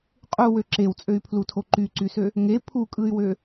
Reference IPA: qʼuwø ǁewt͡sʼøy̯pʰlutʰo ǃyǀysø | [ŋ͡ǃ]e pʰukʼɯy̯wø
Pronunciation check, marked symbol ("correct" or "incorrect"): incorrect